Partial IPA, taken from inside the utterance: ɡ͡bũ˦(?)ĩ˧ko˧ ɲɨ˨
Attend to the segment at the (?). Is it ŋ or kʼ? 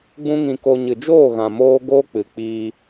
ŋ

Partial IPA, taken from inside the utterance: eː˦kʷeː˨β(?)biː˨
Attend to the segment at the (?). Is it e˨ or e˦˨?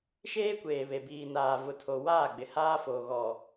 e˨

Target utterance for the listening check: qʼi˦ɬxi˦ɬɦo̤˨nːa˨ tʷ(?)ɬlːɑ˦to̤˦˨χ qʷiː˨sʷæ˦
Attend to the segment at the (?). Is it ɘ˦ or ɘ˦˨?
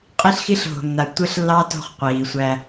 ɘ˦˨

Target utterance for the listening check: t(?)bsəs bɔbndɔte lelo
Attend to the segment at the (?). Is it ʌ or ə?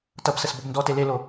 ʌ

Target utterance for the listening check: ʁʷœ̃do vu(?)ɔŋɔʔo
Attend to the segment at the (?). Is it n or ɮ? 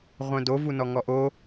n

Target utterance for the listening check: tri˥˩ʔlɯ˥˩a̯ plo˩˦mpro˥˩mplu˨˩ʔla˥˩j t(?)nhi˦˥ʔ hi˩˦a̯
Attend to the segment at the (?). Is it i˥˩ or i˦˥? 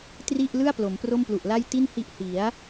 i˥˩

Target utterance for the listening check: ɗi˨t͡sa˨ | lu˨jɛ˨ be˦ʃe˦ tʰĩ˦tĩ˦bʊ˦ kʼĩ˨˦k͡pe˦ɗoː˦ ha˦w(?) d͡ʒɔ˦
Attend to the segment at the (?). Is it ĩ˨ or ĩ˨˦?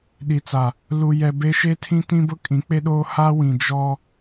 ĩ˨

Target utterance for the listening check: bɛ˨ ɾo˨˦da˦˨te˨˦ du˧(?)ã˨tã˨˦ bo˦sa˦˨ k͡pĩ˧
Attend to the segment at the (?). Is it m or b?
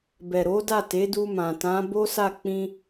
m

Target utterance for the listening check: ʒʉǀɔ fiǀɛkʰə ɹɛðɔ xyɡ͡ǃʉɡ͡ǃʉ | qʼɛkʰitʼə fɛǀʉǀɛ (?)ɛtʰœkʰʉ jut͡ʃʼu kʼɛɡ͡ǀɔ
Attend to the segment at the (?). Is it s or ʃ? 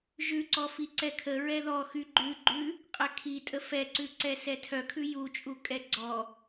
s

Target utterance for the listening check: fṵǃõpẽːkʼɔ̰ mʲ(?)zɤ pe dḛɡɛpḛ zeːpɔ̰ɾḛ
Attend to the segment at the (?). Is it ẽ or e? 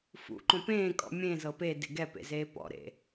ẽ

